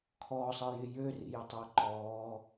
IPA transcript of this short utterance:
kʰ ɔː sˤ ɤ j ɪ j ø r ḭ j ə tˤ ə˞ ǃ ɔː

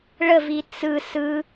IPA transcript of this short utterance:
ɭ ə v i t͡s ɯ s ɯ

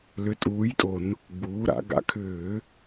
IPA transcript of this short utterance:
l ʏ˨˥ tʼ uː˨˥ j tʼ o˧˩˧ n | ɡ͡b uː˩˧ ɾ a̰˩˧ ɡ a̰˨˥ kʰ ʏː˧˩˧

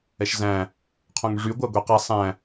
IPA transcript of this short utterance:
ɛ ʃ z æ̃ | qʰ õ ŋ ʐ y ɡʷ æ ɡʷ ɛ q ɛ sˤ æ̃

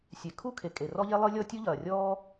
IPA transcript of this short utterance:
sʲ e˩ kʰ u˥ kʰ e˩ kʼ e˩ r ɔ˥ ʎ e˥ lˠ ɨ˥ lʲ ɔ˥ tʲ u˥ ʎ ɐː˩ rʲ ɔː˥

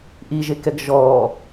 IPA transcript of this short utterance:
ʔ i ʒ e k ɛ ɡ ʒ ɔː

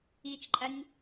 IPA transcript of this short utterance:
i t͡ʃ ǃʼ æ nʲ

